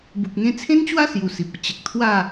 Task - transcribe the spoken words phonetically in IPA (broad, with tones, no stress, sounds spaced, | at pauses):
b u˨ k̚ ŋ ẽ˧ t͡sʰ ẽ˦ n t͡ɕ w a˦ s j u˧ s i˨ p̚ ə˧ t͡ɕ ə˨ k̚ t̪ʰ w a˥˧